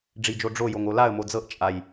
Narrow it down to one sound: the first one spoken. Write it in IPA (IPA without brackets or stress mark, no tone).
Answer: ɖ͡ʐ